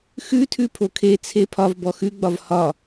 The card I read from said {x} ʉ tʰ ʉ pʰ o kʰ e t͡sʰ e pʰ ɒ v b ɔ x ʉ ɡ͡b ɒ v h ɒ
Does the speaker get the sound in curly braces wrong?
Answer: no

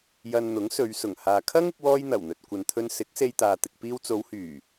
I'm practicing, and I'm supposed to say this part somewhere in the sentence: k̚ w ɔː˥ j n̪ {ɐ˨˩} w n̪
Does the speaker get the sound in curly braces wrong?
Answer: no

